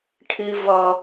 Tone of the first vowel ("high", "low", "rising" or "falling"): low